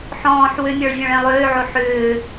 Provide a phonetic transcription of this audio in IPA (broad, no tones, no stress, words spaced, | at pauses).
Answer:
ħɔ̃ːħ wʏmʲɔɭvʲɔ̃ɭɛ̃ lˠøːʕo ħʏː